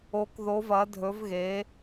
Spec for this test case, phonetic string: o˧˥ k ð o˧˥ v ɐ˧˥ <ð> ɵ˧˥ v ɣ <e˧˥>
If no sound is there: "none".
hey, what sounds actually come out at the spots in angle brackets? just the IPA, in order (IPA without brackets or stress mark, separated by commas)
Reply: dʱ, e˧˥